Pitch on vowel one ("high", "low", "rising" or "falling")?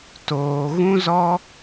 low